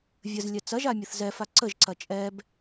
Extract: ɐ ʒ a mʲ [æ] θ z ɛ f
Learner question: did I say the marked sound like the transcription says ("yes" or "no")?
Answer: no